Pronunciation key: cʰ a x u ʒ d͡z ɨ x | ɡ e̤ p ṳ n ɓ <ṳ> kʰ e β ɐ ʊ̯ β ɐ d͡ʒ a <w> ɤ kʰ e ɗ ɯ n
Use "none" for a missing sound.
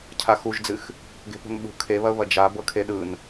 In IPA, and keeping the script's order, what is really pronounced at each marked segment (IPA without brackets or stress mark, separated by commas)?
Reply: ṳ, b